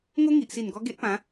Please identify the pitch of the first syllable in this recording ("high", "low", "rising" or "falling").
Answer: high